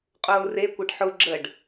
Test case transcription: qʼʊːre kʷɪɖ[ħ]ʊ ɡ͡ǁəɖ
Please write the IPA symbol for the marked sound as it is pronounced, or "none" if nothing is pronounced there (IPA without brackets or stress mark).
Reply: ħ